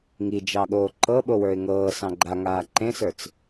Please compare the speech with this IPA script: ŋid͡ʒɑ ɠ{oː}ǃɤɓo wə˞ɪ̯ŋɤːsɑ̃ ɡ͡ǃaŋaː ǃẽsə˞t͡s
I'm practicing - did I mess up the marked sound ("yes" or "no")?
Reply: no